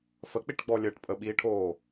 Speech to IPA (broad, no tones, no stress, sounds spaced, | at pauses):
f ə k͡p i ʈ ɡ͡b ɔ lʲ əː ʈ pʼ ə ɓ iː ʈʰ oː